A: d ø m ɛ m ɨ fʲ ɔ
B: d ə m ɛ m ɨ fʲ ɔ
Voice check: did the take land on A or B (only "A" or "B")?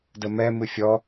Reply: B